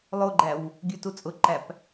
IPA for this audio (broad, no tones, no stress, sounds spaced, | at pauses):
lˠ o ɡ͡ǃ æ w | ɡʲ ʉ t u t͡sʼ ʊ ǃ æ p